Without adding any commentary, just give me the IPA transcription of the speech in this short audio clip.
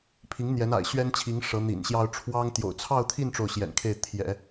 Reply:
pʰ i˧˥ ŋ n̪ j ɛ˧˥ n a̰˨˩ ɪ̯ ɕ ɥ ɛ˥ n t͡ɕʰ i˧˥ ŋ ʂ ɤ˧˥ n̪ ḭ˨˩ n ɕ j ɑ˥ ʊ̯ ʈ͡ʂʰ w ɑ˥ ŋ t̪ j o̰˨˩ ʊ̯ t͡sʰ ɑ˥˧ ʊ̯ t̪ʰ i˥˧ n ʈ͡ʂ o˥˩ ʊ̯ ɕ j ɛ̰˨˩ n kʰ e˥˩ ɪ̯ t̪ʰ j ɛ̰˨˩˦

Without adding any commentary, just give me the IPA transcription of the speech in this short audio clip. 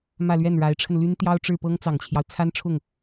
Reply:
m ä˥˧ l ɥ ɛ˥˩ n ɻ a˧˥ ɪ̯ ʈ͡ʂʰ ə˧ n l y˥ n t̪ j ɑ˥ ʊ̯ ʈ͡ʂ ɻ̩˥˩ p ɤ˥ ŋ t͡s ɑ˨˩ ŋ t͡ɕʰ j ɑ˦ ʊ̯ t͡sʰ a˥ n ʈ͡ʂʰ ʊ˥˩ ŋ

